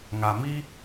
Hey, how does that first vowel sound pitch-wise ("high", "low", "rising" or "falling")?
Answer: low